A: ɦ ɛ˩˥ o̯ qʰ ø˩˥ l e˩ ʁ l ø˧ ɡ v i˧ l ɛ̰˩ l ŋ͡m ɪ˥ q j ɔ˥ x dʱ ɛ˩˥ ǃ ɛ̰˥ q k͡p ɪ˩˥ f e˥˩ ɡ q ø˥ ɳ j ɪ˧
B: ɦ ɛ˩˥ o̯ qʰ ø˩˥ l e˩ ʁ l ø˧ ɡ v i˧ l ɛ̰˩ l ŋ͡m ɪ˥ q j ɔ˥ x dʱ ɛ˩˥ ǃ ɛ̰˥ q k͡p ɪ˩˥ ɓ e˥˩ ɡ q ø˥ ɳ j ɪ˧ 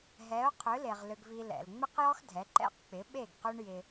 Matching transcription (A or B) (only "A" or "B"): B